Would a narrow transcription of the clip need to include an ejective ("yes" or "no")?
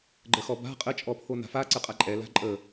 yes